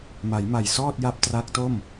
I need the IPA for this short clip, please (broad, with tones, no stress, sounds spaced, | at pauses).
m a˩˦ j m a˨˩ j s ɔː˥˩ t̚ j a˦˥ p̚ t r a˦˥ k̚ t o˥˩ m